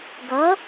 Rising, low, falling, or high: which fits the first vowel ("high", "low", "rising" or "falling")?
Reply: rising